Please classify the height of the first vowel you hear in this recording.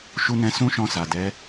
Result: high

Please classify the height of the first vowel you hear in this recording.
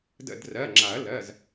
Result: mid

